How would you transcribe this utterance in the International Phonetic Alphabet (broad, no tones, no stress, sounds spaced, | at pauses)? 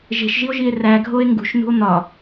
ʒ e̤ ʃ ʒ i o̯ ʒ i e̯ r æ ɡʱ o e̯ ŋ ɡ ṳ ʃ n ṳ o̯ n̪ ɒ